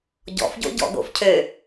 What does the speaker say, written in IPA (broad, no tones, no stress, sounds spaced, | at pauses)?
ɟ ɔ̰ f ɟ o̰ ɟ ɔ̰ ɡ o̰ f cʰ ø